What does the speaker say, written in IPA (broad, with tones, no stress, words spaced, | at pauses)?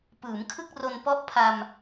pɯː˩˦mkʰɯ˥˩k̚ro˧n pɔ˦˥ʔpʰa˧m